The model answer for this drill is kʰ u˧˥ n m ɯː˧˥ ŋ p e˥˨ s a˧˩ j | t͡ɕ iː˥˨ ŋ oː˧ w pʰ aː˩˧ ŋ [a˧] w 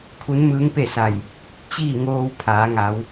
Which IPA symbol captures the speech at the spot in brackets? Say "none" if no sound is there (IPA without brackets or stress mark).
a˩˧